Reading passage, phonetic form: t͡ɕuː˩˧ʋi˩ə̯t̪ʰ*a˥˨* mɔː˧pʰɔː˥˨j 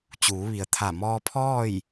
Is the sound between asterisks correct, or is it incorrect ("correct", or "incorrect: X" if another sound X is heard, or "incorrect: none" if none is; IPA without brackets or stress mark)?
incorrect: a˧˩